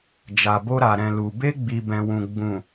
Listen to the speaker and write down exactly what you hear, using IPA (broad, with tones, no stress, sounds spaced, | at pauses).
d͡ʒ a˨ b o˧ ɾ a˨ ɾ ɛ̃˨ l u˨ b e˧ ɡ͡b i˨ b ɛ̃˨ w ũ˨ ɡ͡b ũ˨